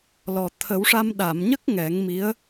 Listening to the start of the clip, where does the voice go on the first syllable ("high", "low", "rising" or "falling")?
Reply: low